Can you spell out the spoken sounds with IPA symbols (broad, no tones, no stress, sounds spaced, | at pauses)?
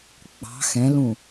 ɡ͡b ɑ̤ x ɛ̃ l ũ